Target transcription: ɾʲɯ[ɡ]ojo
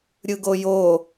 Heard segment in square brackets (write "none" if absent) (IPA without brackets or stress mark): ɡ